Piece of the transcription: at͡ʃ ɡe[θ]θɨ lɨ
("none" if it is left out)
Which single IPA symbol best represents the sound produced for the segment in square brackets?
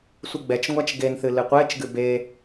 n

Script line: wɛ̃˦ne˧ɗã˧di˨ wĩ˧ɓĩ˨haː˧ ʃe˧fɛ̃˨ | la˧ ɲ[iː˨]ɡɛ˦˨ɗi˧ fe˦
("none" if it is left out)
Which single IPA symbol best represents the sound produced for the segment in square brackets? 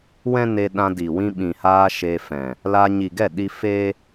i˨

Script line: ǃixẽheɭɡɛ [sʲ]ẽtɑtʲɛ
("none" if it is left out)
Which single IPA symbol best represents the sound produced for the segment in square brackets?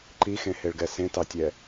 s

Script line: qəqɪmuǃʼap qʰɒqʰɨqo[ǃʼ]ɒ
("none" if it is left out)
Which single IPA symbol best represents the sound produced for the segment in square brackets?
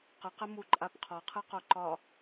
ǃ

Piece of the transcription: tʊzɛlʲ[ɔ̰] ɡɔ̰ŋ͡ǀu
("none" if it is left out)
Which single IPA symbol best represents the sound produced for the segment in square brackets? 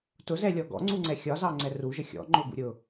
ɔ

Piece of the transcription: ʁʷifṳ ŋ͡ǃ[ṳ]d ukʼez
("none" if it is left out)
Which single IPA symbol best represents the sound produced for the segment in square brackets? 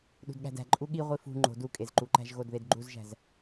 o̤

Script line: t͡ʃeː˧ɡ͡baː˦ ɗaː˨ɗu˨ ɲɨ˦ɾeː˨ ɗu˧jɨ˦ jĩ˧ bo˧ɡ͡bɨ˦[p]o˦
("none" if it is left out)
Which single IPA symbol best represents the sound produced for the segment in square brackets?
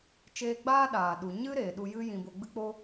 k͡p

